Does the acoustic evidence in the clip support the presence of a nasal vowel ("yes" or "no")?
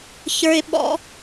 no